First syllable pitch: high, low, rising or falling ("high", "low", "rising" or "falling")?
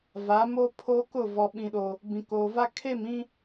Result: rising